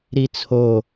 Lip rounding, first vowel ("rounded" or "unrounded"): unrounded